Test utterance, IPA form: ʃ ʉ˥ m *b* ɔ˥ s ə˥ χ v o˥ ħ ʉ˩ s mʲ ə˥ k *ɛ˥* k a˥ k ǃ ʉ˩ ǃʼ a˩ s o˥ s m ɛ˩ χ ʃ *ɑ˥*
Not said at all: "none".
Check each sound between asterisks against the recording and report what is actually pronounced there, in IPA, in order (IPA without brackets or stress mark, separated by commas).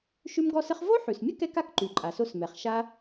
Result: ɡ, ɛ˥, a˥